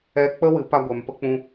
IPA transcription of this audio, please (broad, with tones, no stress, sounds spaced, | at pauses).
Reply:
ɛ˧ k͡p ə˦ w ɨ˨˦ p a˧ ɡʷ ɛ˨ m p ə˦ k͡p ũ˦